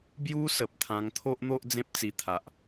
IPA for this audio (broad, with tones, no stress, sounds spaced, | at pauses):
b j u˦ s ə˨ p̚ t̪ʰ ã˧ ŋ t̪ʰ o˦ ʔ n̪ o˦ ʔ d͡z ẽ˦ p̚ t͡s i˧ t̪ʰ a˨ ʔ